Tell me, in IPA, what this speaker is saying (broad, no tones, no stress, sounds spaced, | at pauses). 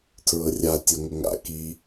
tʰ ɹ ɤ rʲ a tʲ ɤ ŋ ʊ ŋ a̰ k i